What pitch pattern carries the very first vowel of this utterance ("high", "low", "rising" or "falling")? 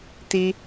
high